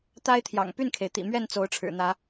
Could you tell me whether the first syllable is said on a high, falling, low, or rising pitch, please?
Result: high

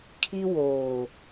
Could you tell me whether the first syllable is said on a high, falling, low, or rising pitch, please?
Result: high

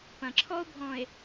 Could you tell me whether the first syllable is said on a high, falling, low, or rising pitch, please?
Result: low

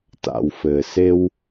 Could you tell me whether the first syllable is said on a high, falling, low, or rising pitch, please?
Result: low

